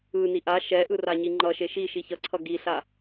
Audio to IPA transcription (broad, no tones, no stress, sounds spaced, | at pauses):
ɯ n i ʔ a ʃ ɛ ʔ ɯ r a ɲ i ŋ͡ǃ ʌ ʃ e ʃ i ʃ i ç ʌ ǀʰ ʌ ɡ i ɬ a